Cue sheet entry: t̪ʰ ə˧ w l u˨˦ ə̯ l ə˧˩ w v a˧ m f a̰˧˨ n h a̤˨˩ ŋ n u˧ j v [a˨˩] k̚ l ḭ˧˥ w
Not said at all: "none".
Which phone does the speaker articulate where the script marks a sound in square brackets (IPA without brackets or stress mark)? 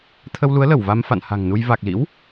a˨˩